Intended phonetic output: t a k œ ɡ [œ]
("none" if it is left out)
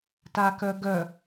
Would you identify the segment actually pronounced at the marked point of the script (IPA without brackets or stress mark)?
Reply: œ